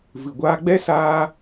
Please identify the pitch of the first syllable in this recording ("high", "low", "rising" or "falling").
low